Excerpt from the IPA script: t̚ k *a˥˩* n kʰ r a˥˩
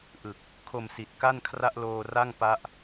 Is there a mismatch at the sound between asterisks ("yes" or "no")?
no